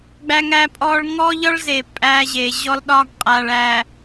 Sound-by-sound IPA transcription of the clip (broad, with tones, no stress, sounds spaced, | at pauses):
ɡ͡b æ˦ ŋ æ˦ pʼ ɔ˦ ɭ ŋ ɔ˦ ʎ ɒ˦ ɭ z e˨ pʼ æ˦ ʑ e˨ ʑ ɔ˦ l ɗ ɒ˦ ɡ qʼ a˨ ɭ æ˨